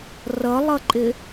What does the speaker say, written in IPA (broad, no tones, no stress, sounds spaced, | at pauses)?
r ʌ lˠ ʌ ǃʼ ɪ